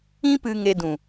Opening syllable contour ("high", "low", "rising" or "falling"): high